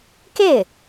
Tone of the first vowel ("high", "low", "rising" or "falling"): falling